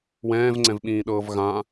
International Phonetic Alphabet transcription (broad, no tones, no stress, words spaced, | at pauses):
wɛ̃ːvŋ͡ǀɛ̃vɓĩːɗɤːv ɣã